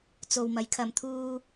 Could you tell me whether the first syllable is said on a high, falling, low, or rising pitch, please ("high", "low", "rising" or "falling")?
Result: low